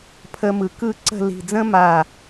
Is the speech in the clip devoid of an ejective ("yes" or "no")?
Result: yes